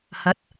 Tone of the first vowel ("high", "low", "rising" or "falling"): rising